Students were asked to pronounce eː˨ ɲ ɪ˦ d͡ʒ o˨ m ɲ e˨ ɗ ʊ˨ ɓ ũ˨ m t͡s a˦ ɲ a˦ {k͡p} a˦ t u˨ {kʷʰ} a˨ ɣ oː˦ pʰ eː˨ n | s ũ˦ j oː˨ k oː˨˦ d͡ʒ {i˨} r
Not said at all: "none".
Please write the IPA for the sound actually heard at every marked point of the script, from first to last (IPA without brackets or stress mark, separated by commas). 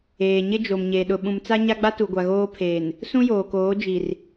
ɡ͡b, ɡʷ, i˨